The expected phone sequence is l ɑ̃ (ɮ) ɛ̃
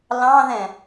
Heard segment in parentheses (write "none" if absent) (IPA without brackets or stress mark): ð